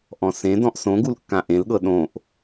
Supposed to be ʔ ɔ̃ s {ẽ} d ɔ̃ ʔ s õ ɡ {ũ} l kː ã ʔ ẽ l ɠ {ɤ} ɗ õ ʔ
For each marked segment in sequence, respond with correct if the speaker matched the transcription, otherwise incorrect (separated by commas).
correct, incorrect, correct